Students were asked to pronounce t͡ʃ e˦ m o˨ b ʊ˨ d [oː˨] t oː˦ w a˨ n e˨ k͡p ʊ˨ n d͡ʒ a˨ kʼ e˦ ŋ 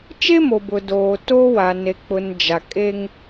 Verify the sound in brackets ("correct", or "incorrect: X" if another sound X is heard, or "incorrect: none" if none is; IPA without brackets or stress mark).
correct